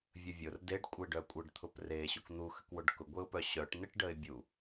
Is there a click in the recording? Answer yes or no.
no